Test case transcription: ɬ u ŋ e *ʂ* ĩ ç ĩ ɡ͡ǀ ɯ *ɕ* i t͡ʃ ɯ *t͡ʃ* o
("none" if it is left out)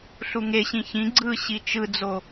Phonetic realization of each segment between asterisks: ɕ, ɕ, d͡z

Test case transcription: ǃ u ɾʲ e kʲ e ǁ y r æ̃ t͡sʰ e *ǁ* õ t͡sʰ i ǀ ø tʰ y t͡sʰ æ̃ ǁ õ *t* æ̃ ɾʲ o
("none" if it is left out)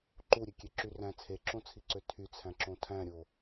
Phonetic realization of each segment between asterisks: ǁ, tʰ

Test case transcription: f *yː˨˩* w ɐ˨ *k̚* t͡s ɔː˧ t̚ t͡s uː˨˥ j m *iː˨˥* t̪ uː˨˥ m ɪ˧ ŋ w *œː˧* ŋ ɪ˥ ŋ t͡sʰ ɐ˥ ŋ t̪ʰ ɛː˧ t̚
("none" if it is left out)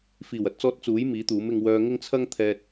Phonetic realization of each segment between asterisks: iː˨˩, t̚, iː˨˥, œː˧

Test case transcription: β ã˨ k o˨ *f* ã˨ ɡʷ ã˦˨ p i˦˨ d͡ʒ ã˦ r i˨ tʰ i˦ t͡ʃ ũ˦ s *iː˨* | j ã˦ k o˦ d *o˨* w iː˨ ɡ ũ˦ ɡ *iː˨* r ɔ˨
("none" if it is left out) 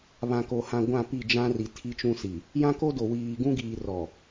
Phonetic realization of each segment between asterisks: h, i˨, o˨, iː˨

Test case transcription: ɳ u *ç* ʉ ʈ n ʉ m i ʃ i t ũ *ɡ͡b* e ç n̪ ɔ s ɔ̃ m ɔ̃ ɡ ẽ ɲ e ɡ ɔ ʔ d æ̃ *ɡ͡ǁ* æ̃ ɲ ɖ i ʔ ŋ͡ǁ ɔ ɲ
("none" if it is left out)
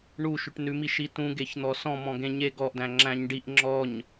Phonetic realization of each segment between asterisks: ʃ, ɡ, ŋ͡ǁ

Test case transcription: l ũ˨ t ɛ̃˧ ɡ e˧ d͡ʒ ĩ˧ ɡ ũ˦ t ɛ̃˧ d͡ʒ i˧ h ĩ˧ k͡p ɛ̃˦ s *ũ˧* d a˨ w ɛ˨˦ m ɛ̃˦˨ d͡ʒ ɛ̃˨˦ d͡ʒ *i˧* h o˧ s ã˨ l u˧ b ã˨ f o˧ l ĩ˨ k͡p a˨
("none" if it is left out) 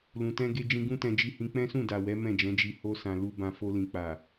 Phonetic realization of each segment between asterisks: ũ˦˨, i˧

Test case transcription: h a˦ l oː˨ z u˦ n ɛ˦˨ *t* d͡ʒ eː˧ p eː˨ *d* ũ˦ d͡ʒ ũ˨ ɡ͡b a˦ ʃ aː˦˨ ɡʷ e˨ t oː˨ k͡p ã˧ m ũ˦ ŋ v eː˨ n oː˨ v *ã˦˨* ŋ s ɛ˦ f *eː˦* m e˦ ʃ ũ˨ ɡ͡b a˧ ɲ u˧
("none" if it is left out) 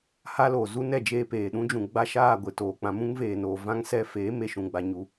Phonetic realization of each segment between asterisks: none, ɗ, ã˦, eː˨˦

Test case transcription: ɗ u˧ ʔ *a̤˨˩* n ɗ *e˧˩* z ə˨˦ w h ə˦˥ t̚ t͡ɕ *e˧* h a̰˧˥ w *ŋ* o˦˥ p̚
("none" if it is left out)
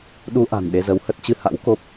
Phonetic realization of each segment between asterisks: a̤˨˩, e˧, ɨ˧, k

